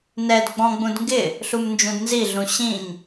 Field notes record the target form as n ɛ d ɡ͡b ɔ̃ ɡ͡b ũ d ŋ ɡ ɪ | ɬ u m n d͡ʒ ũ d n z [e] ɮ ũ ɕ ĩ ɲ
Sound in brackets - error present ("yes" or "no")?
yes